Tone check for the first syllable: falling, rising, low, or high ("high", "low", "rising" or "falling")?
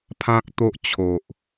high